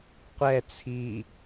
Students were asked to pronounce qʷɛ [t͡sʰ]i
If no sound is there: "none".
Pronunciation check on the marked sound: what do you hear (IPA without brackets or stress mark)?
t͡sʰ